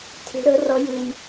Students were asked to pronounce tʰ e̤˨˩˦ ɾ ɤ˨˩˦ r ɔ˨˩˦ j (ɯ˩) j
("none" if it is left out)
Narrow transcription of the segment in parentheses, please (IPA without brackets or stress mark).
ɯ˩